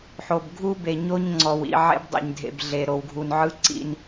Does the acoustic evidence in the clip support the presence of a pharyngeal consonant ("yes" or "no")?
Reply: yes